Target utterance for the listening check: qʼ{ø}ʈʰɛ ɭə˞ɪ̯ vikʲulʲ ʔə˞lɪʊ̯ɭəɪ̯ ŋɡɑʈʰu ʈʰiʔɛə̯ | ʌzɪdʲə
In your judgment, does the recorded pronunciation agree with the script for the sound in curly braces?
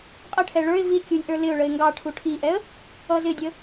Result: no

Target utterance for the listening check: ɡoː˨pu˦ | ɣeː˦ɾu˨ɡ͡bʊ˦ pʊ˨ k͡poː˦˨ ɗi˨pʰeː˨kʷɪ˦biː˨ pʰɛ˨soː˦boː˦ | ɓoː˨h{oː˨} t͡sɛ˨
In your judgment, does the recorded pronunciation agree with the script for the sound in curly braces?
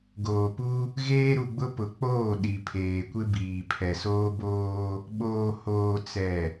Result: yes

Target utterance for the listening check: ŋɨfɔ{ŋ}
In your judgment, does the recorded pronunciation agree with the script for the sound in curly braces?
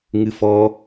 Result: no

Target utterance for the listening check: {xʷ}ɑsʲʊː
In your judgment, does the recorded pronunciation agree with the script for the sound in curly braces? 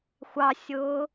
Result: yes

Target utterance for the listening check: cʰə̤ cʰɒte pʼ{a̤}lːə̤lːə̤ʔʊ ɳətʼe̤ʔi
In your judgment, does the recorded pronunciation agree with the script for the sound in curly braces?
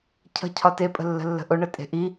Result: no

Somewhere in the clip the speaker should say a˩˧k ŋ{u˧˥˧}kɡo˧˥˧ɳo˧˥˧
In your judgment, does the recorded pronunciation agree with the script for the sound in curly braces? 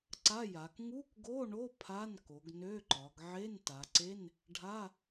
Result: yes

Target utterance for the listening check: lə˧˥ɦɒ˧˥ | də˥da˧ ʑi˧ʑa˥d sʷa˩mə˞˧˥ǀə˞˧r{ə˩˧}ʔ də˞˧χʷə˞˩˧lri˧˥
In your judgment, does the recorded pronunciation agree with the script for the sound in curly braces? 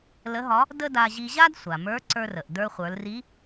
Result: no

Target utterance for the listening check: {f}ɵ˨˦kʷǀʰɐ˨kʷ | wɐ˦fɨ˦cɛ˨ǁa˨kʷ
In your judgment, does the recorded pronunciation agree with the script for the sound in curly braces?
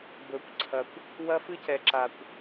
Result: no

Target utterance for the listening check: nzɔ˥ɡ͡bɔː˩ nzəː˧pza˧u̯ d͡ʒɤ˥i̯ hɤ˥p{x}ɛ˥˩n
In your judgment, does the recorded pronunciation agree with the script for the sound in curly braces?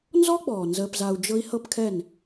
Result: no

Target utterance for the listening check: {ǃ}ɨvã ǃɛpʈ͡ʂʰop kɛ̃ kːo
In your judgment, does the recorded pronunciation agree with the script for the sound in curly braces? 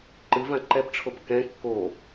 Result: yes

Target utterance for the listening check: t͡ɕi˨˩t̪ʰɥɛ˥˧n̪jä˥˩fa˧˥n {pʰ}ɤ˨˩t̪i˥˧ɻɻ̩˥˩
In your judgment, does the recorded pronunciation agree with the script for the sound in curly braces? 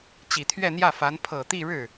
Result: yes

